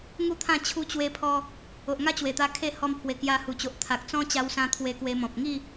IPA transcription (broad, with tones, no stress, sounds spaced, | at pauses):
ŋ u˥˧ t̪ʰ ã˥˧ t͡ɕʰ u˧ t͡ɕ w e˧ pʰ ɔ˧ | o˨ ʔ ŋ a˥˧ t͡ɕ w e˨˩ t̪ a˧ kʰ e˥˧ h ɔ˧ m pʰ w e˨˩ k j a˧ h u˨˩ t͡ɕ o˨ ʔ t̪ʰ a˨ k̚ t͡s ɔ̃˦ t͡ɕ a˧ w s ã˧ t̪ʰ w e˧ k w e˧ m ɔ̃˨ p̚ ŋ i˥˧